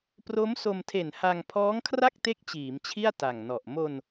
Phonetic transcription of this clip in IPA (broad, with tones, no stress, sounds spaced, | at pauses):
p r o˦˥ m s o˧ m tʰ e˨˩ n h a˧ ŋ pʰ ɔː˦˥ ŋ kʰ r a˥˩ k̚ t e˦˥ k̚ t͡ɕ iː˩˦ m t͡ɕʰ i˥˩ a̯ t a˨˩ ŋ n ɔ˨˩ ʔ m o˧ n